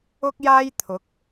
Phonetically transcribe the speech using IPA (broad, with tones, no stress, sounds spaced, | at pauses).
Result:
ʊ˥ k̚ j aː˥ j t̪ʰ ʊ˨˥ k̚